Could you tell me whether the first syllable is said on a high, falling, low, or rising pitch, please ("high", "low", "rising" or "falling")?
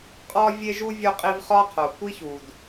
high